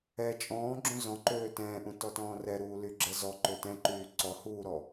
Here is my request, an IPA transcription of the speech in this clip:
ɛ t͡ʃʼ ɔ̃ː ɡ͡ǁ ũ z ɔ̃ ǃ øː t ɛ̃ː ʔ ũ t ɔ t ɔ̃ː r ɛ ɾ uː l y ɡ͡ǁ ɛ z ɔ ǃ ø t ɛ̃ ǃ yː ǀ ɔ h uː ɾ ɔ

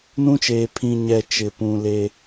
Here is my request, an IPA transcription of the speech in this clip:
n ũ˦ t͡ʃ eː˨ pʰ ĩ˨ ɲ ɛ˨ t͡ʃ ɪ˨ p ũ˨ l e˦

